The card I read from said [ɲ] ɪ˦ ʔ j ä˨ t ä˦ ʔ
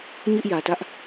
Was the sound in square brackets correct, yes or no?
yes